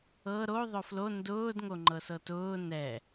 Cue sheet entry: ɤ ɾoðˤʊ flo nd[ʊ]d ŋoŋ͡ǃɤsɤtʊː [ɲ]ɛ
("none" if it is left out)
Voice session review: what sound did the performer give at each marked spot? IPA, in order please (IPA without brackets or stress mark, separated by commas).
ʊː, n